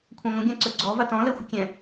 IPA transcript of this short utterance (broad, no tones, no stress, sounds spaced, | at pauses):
kʷʰ ã ŋʷ ə̃ ɡʲ ã ǀ ɵ ɡ͡ǀ ɔ v a t ɔ̃ l ɛ xʷ ə kʲ ɛ̃